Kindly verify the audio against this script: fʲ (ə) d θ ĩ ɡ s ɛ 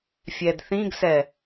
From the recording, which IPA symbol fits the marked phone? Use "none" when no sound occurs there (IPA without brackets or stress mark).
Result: ɛ